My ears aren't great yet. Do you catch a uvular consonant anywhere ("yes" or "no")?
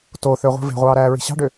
yes